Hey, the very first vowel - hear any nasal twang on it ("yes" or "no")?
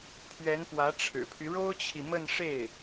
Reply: no